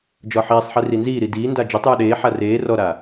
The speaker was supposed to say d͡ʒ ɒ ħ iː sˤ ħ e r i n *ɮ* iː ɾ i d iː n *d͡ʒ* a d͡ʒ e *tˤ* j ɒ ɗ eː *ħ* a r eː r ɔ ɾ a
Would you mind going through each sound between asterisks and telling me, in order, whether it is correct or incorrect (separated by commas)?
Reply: incorrect, incorrect, correct, correct